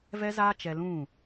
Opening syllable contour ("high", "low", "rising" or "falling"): high